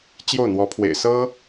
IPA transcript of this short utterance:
t͡ɕjo˥˩ʊ̯n̪wɔ˧˥pʰwḛ˨˩ɪ̯ sɤ˥

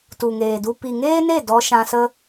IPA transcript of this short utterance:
tu˨ŋeː˨du˧ pi˨ŋeː˦ne˦˨ dɔ˧ʃã˧sə˦

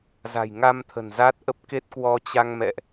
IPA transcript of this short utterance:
za̤˨˩jŋa˧mt̪ʰə̤˨˩n za˦˥t̚ʔə˦˥p̚ ke˦˥t̚kwɔ˧t͡ɕa˧ŋmɛ̰˧˨ʔ

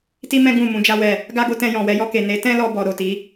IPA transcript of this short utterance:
ti˦mɛ̃˦ ɡũ˦˨ mũ˨˦d͡ʒa˦wɛ˦˨ | ɡa˦ɡo˦tɛ̃˧jɔ̃˨ wɛ˨˦jɔ˧ke˨ ne˨˦ tɛ̃˦lɔ˧bɔ˨ ɾo˨ti˨˦

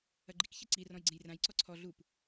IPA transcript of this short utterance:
ɐɡ͡ǃik çɘǀi rɔ̃jɡ͡ǀẽjrãj ǀɔǀʰɔ ɮup

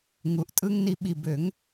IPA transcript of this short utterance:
ŋu˨˩ʔtʼɯ˦ŋ ni˨˩˦ɓi˨˩ bø˨˩˦ŋ

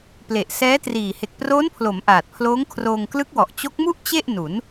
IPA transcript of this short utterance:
ple˨˩ʔsɛː˦˥triː˨˩ he˨˩k̚proː˦˥npʰlo˩˦m ʔaː˨˩t̚pʰloː˦˥ŋkʰroː˧ŋ klɯ˦˥k̚wɔ˨˩ʔ t͡ɕo˦˥k̚mu˥˩ʔ t͡ɕe˥˩ʔ nu˩˦n

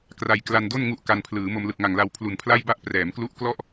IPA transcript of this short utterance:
kra˧jkla˧ndo˥˩n ŋu˥˩ʔka˧npʰlɯː˩˦ mo˧mlɯ˨˩k̚ŋa˨˩ŋla˧w pʰlu˨˩npʰla˥˩jba˥˩ʔ prɛː˩˦mklu˦˥ʔklɔ˥˩ʔ

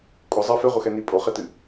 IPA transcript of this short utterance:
kʷʼəzˤɜ feʁʷəxɛni pʼoχetɨ

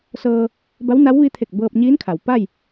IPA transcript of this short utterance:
sɤː˧ | ba˧˥wna˧˥wʋi˧˥t̪ʰe˧˩k̚ bɤː˧p̚ɲiː˧˥nkʰa˩w pa˥˨j

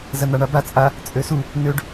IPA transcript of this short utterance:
zɐn̪aɳaba t͡sʼa | t͡sʼøsu | nøɖ

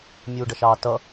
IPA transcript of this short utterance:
mʲuːɖʌʃɑːtʌ

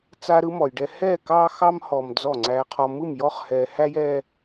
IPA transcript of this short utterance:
t͡sa˦ɾɯ˦mɔ˨jɖɛ˦ hɛː˦˨kɑː˦ xɑ˦mhɔː˨m d͡zɔ˦˨ŋ͡ǀæː˦qʰɔ˦ mɯ˦˨mjɔ˦χ hɛː˦ hæ˦jɛː˦

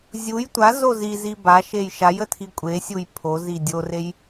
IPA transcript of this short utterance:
zʲuj tʷa zozizi ba ʃejʃajə tʰikʷʼesʲuj pʰo zidʲorej

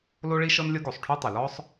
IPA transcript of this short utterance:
lo˥ɭi˥ ʃɤ˥nlʲɤ˥ ɡo˩sˤ ʈʰu˥tˤe˩ lɔ˥sˤ

